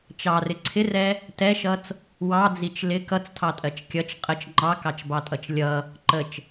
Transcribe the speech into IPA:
t͡ʃɑrɪ ǀʰɪrɛ | tɛʃʌt͡s | wɑd͡zit͡ʃ lɪ kʌt͡stʰɑtʼɜt͡ʃ kʲʌt͡ʃ qʼət͡ʃ ŋ͡ǃɑkɑt͡ʃbɑtʼʌt͡ʃ lʲʌ | ǃət͡ʃ

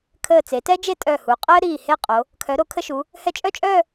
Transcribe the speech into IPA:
kʰəː˧˩t͡se˩˧tɛ˥d͡ʒe˥˧ tʼœ˧˩hu˩˧ qʼəː˥ ɾiː˧˩he˥˧qʼo˩˧ | kʰœ˩˧ɾo˩˧kʰə˧ʃu˩˧ | hɛ˧t͡ʃʼœ˥˧t͡ʃʼœː˥˧

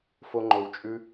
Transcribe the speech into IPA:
fo˦ŋ͡ǃo˧wt͡ʃʼʉ˦

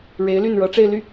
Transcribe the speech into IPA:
ɻe˧˥ɪ̯ly˥˩n ɻɤ˧˥ʈ͡ʂe˥˧ɪ̯ly˥˩

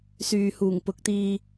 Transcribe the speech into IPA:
syː˨huː˨˩ŋpʊ˨˥k̚t̪iː˧

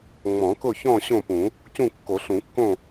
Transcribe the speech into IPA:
ŋ͡mɔ̃˨˩˦kʊ˥˨çɔ̃˥˨ ɕõ˥˨pũ˨˩˦ | cũ˥˨kːo˨˩˦ɬũ˨˩˦kːõ˥˨

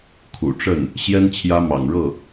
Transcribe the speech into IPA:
kʰṵ˨˩ʈ͡ʂə˥˩n | ɕjɛ˥n t͡ɕʰjä˥mɑ̰˨˩ŋɻɤ˥˩

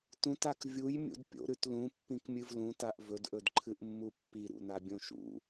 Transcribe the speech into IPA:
tũtak vʲujmʲṵd pʲo̰ɾʉt lũpːĩkmʲɨv lũtaʔ vɵdʔɵdǃʰɨʔmːu pːiɾṵnabʲõ ʃṵ

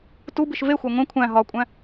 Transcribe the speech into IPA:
tubiʃ vexʷæ ŋʷẽ kʷʰæ̃ ɦɒkʷʼæ̃

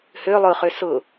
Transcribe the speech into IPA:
hø lˠʊχø sʊ

